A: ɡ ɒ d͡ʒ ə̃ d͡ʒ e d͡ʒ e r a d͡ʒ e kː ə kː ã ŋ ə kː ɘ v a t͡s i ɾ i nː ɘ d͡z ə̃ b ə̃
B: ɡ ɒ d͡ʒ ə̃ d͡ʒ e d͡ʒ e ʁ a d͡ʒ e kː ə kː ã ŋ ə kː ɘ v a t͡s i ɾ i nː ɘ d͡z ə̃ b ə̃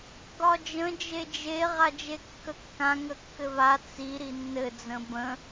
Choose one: B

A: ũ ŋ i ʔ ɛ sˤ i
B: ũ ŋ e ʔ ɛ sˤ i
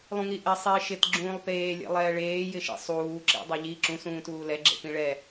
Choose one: A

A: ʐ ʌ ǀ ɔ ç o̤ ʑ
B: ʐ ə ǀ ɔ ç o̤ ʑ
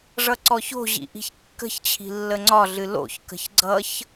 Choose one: A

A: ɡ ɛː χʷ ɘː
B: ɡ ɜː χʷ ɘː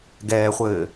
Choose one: A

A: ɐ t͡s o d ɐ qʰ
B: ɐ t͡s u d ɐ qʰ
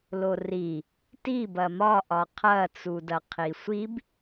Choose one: B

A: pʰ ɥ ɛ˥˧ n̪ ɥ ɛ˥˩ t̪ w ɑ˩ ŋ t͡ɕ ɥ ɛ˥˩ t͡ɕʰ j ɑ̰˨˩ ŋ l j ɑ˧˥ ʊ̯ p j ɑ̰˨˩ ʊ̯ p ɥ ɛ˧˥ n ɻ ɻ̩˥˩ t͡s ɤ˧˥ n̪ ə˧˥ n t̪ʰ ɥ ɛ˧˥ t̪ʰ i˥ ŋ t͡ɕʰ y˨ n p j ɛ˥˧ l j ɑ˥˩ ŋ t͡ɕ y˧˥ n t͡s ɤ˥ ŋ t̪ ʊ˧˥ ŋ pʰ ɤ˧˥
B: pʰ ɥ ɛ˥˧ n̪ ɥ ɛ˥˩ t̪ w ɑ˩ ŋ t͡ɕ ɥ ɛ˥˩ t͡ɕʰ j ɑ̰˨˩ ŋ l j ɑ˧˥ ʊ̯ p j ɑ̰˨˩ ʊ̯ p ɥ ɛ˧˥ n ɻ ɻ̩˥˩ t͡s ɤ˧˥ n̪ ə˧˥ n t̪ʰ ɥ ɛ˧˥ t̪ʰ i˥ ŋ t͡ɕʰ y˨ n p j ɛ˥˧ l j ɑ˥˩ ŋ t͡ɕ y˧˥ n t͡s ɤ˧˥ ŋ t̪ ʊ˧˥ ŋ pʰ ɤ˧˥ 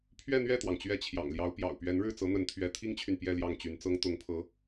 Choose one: A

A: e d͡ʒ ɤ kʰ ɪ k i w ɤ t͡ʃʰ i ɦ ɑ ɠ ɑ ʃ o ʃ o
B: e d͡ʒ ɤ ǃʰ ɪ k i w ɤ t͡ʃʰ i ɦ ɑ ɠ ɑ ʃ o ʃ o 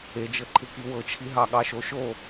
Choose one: B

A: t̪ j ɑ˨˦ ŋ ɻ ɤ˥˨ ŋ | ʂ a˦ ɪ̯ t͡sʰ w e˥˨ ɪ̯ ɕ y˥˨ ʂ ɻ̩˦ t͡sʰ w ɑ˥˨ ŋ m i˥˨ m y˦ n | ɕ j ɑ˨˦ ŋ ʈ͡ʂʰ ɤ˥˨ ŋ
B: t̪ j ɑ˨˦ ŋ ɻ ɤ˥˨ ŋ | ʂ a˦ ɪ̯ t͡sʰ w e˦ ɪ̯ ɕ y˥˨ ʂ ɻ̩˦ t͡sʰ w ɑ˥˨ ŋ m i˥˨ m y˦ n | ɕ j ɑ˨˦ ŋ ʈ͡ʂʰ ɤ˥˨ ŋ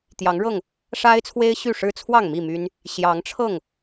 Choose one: B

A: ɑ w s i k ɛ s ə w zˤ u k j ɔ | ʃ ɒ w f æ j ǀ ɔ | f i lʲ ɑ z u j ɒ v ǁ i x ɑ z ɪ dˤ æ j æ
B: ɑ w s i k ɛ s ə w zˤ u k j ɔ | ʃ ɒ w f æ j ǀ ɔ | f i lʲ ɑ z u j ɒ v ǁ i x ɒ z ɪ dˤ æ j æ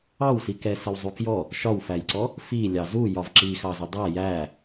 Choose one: A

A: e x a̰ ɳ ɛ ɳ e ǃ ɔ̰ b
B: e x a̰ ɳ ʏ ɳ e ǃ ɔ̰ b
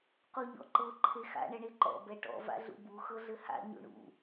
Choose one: A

